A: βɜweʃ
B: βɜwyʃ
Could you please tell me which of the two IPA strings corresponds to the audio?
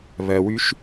B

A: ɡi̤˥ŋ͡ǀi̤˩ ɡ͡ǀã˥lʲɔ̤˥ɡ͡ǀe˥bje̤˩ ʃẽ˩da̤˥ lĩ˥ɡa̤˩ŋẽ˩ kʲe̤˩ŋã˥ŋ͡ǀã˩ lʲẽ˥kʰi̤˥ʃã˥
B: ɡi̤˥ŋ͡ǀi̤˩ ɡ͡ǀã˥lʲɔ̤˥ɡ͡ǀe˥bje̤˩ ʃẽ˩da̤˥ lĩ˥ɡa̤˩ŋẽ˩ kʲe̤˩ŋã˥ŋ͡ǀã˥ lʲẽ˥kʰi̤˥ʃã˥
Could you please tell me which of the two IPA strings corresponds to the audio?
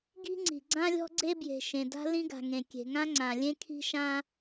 A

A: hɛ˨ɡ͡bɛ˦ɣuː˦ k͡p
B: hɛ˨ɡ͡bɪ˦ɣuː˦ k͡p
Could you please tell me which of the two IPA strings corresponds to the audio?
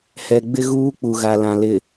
B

